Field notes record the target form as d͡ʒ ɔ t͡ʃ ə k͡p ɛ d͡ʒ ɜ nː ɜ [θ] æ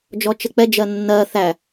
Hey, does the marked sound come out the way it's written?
yes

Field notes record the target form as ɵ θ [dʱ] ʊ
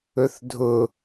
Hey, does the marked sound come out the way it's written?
yes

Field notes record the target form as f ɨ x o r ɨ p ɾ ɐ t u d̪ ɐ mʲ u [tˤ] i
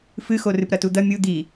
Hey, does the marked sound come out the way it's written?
no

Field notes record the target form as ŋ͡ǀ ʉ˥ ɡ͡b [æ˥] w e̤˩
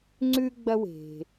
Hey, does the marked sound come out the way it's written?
no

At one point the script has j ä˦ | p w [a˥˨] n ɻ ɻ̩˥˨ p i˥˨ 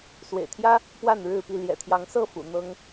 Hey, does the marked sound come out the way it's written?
yes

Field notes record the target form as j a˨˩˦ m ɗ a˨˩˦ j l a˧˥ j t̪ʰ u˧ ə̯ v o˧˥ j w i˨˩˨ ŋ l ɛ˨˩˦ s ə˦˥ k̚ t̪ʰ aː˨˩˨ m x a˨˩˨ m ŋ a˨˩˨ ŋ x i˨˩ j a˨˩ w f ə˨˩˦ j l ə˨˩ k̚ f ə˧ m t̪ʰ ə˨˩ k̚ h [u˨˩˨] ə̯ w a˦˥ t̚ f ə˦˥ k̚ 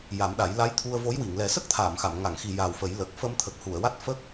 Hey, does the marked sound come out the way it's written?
yes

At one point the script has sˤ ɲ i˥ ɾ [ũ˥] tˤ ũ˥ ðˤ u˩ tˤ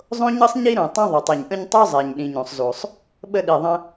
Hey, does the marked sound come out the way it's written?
no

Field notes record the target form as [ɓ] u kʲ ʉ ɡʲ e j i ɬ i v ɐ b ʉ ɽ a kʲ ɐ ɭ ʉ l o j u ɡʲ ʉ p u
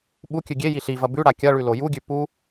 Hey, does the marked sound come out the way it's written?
yes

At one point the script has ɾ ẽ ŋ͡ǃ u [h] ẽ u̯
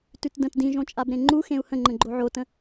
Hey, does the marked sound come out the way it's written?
no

